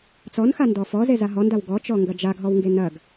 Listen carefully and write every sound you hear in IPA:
t͡sɔnxa ndɔfɔ zezaɦɔndaw ɡɔt͡ʃɔ ŋɡɐd͡ʒaɡɦɔwŋɡe nɐɡ

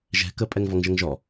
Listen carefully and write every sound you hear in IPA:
ʒɛ̤ kəpʼɛŋ vɔŋʒəŋʒɔ

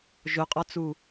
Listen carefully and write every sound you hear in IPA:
ʒʊqʼɔt͡su

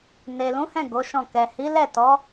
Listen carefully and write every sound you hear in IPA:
ne˨lũ˨˦hɛ̃˦˨ ɡo˨˦ʃɔ̃˦˨ kɛ˨hi˨˦ lɛ˦˨tɔ˨˦

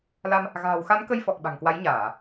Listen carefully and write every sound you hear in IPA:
la˧m | ɣa̤ː˨˩wxa˨˦nkə˧jfɔ˨˩k̚ ɓa̤˨˩ŋkwa˨˦jɲaː˧˩˨

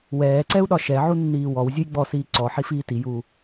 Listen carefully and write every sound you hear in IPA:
wɛːǀɛu̯ɗɒ ʃɛʕunːiː wɔw zʲujɡ͡bɔsiː ǀɔ ħifiːtijuː

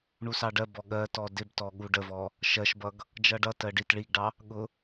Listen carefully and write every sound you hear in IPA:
ɳusɑɖɜbɔ ɠɜ tɔdɪbtɔ ɠuɖəvɔ | ʃɜʃbʌɡ | d͡ʒʌɖʌtɜ ɖit ɭiɡɖɑ | ɠʊ

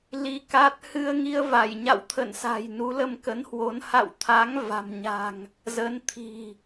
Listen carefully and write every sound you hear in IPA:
li˧ka˦˥t̚ hɨ˧ə̯ŋi˧ə̯ va˧˩jɲa̰˧˨wt̪ʰə̰˧˨n sa̤˨˩jnu˨˦ lə˧mkə˨˦nhwo˨˦n ha̰˧˨wt̪ʰa˨˦ŋ va̤˨˩mɲa̤˨˩ŋ | zə˨˦nt̪ʰi̤˨˩

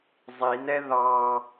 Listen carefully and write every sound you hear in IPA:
zˤinɛ ðɑ

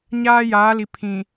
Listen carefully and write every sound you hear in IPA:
ɲaː˦jaː˨˦li˨ pʰĩ˨

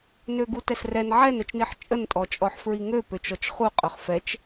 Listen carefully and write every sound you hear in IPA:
nøɡutɛsrɛn ʕɛnət͡ʃniħ t͡ʃʼəntʼɔt͡ʃʼɔħ fɹiŋø pøt͡ʃɔt͡ʃχuqʼøχ fɛt͡ʃ

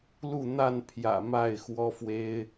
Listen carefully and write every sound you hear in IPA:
lu˥˨n̪a˥˨n pʰjä̰˨˩ ma˥˨ɪ̯xwɔ˦fwe˦ɪ̯

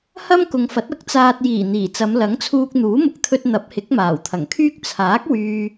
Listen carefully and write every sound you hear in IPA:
hɐ˥mkʊ˨ŋfɐ˨˥t̚ ɐ˥k̚t͡saː˧t̚ jiː˨˩ n̪iː˨˩t͡sɐ˨˧m lɐ˨˥ŋt͡sʰuː˧k̚ n̪uː˨˥mʊ˨k̚t̪ʰɵ˧t̚ n̪ɐ˨˥p̚hɪ˨˥k̚ maː˨˩wt̪ʰɐ˨˩ŋkʰyː˥k̚ t͡sʰaː˨˥k̚ wyː˨

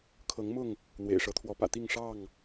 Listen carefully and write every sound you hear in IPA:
kʰɤ˨˦ŋmʊ˥˨ŋ | n̪wḛ˨˩ɪ̯ʂɤ˨˦t̪ʰwɔ˨˦pä̰˨˩ t̪i˥˨ŋʂɑ˥˨ŋ

